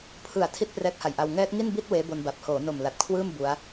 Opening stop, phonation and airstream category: aspirated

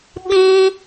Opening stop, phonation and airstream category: implosive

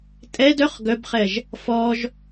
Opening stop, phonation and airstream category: ejective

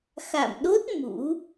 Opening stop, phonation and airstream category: implosive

